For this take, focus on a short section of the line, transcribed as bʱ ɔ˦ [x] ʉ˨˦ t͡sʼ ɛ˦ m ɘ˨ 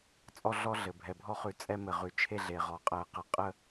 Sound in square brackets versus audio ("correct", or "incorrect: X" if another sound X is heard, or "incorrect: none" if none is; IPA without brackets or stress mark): incorrect: χ